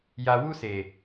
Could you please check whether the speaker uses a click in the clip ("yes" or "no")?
no